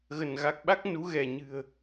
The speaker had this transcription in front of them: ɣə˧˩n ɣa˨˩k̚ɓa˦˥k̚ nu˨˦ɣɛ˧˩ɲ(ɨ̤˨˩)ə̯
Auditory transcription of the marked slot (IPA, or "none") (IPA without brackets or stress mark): ɨ̤˨˩